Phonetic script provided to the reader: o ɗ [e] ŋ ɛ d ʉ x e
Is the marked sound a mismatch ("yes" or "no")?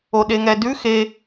no